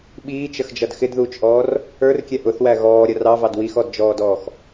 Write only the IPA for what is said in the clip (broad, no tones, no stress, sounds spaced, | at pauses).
ɓ iː t͡ʃ ə x d͡ʒ ʌ d x ɪ d ð uː t͡ʃ ʔ ɔː r | ə˞ r kʲ ɛ ʔ ʊ θ w æ ɣ ɔː ɾʲ ʌ r ɑ v ɑ d w i x ɔ d d͡ʒ ɔː d ɔː x